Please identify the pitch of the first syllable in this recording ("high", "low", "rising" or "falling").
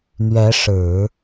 rising